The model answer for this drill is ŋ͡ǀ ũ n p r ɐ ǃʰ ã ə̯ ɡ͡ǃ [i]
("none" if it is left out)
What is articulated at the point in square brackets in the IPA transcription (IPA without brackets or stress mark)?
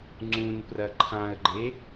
e